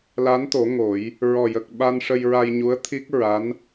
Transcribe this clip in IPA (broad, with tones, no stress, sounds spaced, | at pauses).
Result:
l a˧˥ n t̪ o˨˩˦ ŋ o˨˩˦ j | ɹ ɔ˨˩ j ə˨˩ k̚ ɓ a˧ n ʂ ə˧ j ɹ a˧ j ɲ u˧˥ ə̯ t̪ʰ i˦˥ k̚ ɹ a˧˥ n